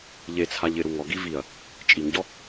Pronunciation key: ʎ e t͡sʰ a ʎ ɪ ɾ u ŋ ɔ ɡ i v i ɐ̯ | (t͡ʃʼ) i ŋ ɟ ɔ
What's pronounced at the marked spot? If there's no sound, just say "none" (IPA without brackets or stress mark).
t͡ʃʼ